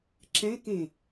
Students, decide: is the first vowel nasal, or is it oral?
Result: nasal